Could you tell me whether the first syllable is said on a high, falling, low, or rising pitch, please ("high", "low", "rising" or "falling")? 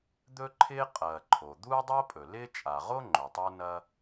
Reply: high